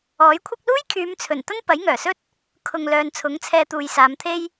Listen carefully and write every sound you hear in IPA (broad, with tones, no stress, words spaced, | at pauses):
ɔː˨˥j kʷʰɐ˥k̚ luː˥jkʰyː˨˧mt͡sʰɵ˨˩n t̪ɐ˥npɐ˨˥jŋœː˨˩sɵ˥t̚ | kʰʊ˨ŋ lœː˨˧nt͡sʰʊ˨˥ŋt͡sʰɛː˧ t̪uː˨jsaː˨˧mt̪ʰe˥j